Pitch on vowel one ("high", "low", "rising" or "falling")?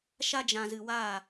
high